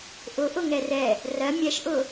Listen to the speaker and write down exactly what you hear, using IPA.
ʔ ʊ ʔ ʊ ŋ ɛ r ɛ | r ɜ mʲ ɛ ʃ ʔ ʊ

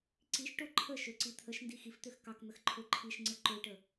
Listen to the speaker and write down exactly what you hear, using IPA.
ǀ i ʃ ʈ o ǃʰ ə ʃ ø ǀ i t̪ʰ ə ʃ n d i x i f t̪ ø x k ɑ k n̪ ə x ǃʰ ø ǃʰ i ʃ ŋ͡ǀ ɯ ǃ ø ʈ ə

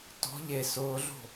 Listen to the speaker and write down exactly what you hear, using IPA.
t ɔ̤ ʎ e s ʊː ɮ o̤

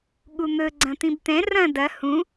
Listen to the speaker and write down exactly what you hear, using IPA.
ɠ u n̪ ɵ ɡ͡ǀ ɐ̃ t̪ ĩ b t̪ ɛ̃ r ɐ̃ d ɐ h ũ

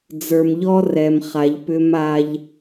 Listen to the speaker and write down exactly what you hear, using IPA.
d͡z ə˞˨ m ʎ ɔ˦ r ɛ˨ m χ a˨ ʎ p ʏ˦ m a˦ ʎ

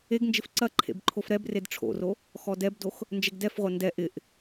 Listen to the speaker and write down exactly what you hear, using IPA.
e ɡ n d͡ʒ ɪ f ǀ ɐ ǃʰ ḛ b ǃʰ o f ɾ ɛ b r e d ʈ͡ʂʰ o̰ r o | x ɔ d ɛ b d o x | n d͡ʒ ɛ ɡ d ɛ f ʁʷ ɐ n d ɛ ʔ ɪ ʔ

